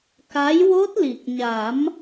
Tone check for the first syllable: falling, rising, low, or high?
rising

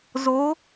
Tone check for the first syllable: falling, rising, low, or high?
rising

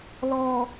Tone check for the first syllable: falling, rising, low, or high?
low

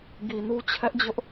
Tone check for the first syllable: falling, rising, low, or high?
low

